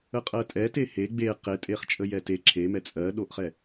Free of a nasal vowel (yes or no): yes